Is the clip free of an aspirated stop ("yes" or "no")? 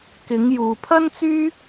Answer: no